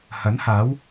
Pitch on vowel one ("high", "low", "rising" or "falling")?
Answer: rising